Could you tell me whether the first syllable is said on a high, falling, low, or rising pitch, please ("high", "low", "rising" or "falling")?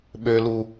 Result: low